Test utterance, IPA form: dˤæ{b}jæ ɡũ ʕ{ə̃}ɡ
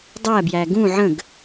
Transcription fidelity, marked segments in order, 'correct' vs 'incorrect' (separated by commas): correct, correct